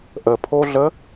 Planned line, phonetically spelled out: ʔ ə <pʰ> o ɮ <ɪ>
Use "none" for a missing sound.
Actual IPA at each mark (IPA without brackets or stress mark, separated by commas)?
pʰ, ə